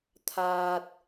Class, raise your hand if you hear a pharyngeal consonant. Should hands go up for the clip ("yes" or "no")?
no